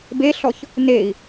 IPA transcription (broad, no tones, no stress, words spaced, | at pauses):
beɬɔç | nei̯